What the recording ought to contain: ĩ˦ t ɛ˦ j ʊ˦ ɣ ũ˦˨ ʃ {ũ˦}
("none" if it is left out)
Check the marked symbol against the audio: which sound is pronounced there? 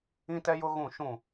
ũ˦˨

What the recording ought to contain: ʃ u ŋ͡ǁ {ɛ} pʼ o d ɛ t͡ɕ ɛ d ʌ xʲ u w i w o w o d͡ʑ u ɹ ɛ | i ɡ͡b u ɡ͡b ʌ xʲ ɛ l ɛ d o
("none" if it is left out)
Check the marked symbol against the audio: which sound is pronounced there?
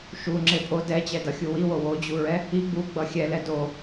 e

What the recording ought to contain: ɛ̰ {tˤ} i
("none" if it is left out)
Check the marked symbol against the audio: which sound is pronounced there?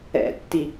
tː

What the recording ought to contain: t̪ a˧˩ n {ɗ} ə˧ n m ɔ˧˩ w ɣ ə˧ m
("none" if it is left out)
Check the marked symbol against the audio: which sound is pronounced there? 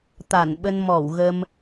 ɓ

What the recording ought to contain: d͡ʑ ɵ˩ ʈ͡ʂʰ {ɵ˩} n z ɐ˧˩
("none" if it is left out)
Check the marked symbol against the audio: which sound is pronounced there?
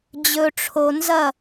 o˩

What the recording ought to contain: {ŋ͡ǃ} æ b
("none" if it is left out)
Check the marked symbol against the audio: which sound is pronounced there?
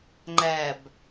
ŋ͡ǃ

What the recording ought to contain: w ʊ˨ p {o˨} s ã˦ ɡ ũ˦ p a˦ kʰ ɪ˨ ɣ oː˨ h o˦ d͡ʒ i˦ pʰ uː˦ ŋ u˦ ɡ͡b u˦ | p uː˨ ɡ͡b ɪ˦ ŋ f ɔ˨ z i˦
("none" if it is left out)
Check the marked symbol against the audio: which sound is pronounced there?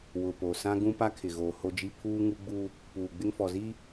o˨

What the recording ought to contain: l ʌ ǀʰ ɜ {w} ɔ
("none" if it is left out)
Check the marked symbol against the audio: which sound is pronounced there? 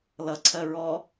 ɹ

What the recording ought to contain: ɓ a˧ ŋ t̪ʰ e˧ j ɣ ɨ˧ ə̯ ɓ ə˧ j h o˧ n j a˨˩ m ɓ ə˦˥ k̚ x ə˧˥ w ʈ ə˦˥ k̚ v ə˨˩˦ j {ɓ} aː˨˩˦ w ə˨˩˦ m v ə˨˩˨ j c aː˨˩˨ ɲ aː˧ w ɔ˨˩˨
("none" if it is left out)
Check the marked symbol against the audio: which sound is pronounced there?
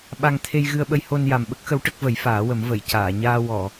f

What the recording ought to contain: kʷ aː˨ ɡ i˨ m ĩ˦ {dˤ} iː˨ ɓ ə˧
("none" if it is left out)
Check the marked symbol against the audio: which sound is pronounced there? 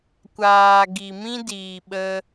d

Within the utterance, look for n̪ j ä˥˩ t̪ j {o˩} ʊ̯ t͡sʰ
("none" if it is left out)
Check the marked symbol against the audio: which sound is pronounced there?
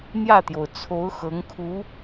o˩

